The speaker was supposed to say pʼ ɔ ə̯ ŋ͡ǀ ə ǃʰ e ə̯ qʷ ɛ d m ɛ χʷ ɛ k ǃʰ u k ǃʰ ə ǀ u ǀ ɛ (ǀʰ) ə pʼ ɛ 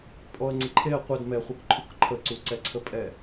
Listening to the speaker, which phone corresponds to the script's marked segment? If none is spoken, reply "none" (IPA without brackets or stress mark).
ǀʰ